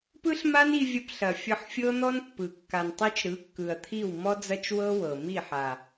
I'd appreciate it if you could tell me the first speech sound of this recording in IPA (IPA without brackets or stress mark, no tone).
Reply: p